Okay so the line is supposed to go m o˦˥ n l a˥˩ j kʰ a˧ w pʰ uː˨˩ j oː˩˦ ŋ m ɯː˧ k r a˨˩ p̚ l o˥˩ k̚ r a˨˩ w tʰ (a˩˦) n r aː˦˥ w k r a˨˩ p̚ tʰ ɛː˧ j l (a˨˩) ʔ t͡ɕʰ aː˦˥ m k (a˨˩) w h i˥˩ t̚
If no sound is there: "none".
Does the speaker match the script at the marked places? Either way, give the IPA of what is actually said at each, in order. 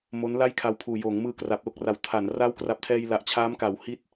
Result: a˩˦, a˨˩, a˩˦

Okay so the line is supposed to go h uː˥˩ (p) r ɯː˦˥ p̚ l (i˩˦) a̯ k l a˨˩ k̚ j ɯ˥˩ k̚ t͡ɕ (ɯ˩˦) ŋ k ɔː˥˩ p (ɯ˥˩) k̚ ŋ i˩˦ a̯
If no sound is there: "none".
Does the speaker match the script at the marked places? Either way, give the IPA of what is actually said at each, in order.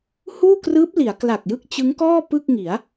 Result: k, i˩˦, ɯ˦˥, ɯ˥˩

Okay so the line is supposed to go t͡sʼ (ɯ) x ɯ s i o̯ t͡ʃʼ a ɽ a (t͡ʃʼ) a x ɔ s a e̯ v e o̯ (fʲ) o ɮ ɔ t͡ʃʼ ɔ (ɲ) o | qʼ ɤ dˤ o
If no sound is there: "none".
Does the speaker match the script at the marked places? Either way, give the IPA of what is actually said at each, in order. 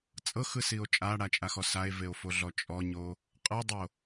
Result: ɤ, t͡ʃʼ, f, ɲ

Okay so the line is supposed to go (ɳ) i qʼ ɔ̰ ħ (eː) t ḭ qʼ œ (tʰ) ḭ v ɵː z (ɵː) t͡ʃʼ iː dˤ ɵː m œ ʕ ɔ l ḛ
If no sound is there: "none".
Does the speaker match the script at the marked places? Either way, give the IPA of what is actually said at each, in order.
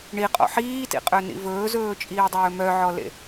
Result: ɳ, iː, n, ɵː

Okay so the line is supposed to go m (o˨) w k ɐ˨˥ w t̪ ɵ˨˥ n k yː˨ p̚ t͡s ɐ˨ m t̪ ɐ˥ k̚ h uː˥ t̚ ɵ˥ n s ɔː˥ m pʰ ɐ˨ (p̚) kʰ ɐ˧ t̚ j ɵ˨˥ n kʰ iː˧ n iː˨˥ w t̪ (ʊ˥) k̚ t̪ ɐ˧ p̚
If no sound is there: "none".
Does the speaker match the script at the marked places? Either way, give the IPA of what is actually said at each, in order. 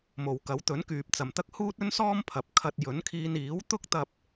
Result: o˨, p̚, ʊ˥

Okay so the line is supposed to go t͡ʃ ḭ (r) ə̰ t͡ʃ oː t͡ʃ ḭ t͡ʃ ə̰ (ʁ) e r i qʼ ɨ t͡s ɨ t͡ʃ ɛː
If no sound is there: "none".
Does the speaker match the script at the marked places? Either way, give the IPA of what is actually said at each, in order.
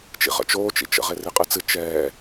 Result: ʁ, ʁ

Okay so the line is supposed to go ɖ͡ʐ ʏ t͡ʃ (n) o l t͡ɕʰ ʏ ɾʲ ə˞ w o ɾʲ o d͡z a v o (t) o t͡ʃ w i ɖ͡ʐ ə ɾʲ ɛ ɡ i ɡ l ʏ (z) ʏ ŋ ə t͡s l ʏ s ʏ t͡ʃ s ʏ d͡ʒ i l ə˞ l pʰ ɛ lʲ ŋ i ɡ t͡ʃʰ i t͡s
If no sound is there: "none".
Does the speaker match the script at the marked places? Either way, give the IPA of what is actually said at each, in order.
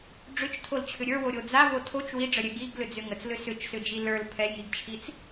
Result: tʰ, tʰ, d͡z

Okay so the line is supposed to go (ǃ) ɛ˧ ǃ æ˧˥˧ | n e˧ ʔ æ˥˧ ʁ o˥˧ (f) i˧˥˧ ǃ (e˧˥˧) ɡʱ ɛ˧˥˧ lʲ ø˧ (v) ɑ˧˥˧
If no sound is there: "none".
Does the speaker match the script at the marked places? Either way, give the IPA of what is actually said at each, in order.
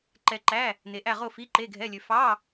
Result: ǃ, f, e˧˥˧, f

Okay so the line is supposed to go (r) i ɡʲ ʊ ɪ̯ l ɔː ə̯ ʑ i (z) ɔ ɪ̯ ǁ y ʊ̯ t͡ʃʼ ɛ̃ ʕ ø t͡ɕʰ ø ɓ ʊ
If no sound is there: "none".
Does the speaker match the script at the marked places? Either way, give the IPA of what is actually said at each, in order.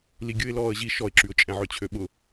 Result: l, ʃ

